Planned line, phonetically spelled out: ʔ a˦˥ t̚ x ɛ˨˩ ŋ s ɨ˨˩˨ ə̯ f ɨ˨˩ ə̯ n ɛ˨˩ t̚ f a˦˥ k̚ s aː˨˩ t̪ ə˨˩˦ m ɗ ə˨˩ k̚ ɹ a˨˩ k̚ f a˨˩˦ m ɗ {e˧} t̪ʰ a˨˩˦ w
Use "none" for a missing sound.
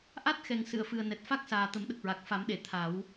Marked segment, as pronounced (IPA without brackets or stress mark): e˨˩˨